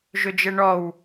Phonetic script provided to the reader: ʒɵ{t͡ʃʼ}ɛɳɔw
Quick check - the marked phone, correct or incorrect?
incorrect